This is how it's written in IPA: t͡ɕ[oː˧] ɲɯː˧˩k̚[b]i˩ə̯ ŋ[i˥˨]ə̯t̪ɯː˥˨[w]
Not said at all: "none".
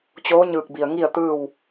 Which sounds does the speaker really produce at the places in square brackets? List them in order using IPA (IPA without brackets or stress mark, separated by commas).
oː˧˥, b, i˥˨, w